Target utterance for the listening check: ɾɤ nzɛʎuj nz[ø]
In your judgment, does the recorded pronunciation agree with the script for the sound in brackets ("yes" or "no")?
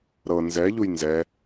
no